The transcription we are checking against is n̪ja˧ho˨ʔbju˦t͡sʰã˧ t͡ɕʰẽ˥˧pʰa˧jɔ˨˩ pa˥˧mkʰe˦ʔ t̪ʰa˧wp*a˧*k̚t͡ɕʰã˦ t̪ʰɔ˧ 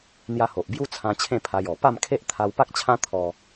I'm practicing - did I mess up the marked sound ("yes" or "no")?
yes